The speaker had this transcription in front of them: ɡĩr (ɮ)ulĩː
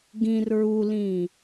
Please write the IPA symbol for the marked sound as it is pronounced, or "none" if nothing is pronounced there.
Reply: ɹ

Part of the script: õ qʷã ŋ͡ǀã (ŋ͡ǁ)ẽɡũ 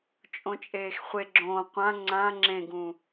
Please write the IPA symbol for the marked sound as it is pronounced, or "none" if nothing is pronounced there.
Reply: ŋ͡ǁ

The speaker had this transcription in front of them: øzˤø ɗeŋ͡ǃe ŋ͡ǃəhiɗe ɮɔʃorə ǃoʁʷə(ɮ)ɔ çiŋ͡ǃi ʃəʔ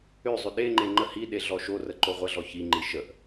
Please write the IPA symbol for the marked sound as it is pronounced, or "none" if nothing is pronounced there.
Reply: ɮ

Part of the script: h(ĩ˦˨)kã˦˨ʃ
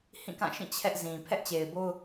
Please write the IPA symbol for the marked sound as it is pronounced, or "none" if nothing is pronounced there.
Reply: ĩ˦˨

